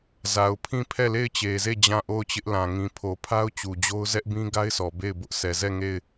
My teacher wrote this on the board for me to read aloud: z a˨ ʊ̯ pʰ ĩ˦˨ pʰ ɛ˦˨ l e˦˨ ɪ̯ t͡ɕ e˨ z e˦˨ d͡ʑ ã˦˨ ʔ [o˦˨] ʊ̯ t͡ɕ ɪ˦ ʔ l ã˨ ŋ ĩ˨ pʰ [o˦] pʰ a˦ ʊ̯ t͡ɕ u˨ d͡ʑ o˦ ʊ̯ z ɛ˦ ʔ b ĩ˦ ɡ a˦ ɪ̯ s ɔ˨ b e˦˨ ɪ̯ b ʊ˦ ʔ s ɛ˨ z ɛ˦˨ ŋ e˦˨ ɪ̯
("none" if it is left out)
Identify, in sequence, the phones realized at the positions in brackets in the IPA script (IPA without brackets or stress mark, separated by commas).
o˦˨, o˨